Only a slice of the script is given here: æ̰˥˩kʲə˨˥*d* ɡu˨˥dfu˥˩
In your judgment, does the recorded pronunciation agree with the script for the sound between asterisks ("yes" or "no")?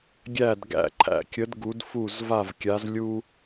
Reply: yes